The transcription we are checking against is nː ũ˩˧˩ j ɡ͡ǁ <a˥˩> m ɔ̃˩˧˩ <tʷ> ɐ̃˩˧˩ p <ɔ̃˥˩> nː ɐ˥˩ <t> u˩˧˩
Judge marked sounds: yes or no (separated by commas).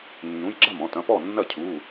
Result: yes, no, no, no